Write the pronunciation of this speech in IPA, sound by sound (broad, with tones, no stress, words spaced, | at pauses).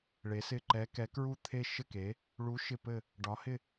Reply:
ɭe˧˥sɪ˥˧ ǃɛ˧˥kɛ˧˥kɹu˥˧t̪ʰe˥˧ ʃɘ˥˧ke˧˥ | ɭu˧˥ ʃɪ˥˧pɘ˥˧ | ɖɒ˧˥hɪ˥˧